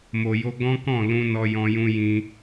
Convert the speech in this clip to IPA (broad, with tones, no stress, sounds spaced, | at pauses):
m o˨ j o˧ ɡ ɔ̃˦ k ɔ̃˦˨ l ũ˧ n ɔ˧ j ɔ̃˧ j ũ˧ j ĩ˧